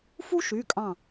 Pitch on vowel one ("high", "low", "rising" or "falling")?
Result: high